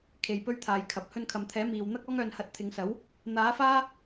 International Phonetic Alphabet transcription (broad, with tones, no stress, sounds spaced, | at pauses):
kʰ e˨ j p ɵ˥ ɥ t̪ʰ aː˨˧ j kʰ ɐ˨ p̚ h ɵ˧ n kʰ ɐ˨ m t̪ʰ ɛː˨˥ m iː˨ w n̪ ɐ˥ k̚ ɔː˥ ŋ œː˧ n h ɐ˧ t̚ t̪ʰ ɪ˨˧ ŋ s ɐ˨˥ w | n̪ aː˨˥ f aː˥